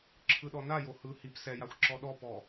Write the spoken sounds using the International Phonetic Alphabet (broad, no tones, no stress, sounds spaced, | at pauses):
ǁʰ ɯ ɗ ɔ n a j o h ɯ h i p s ɛ j a xʷ ǁ ɔ ɗ ɔ p ɔ